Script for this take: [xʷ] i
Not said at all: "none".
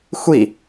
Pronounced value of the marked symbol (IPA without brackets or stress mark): xʷ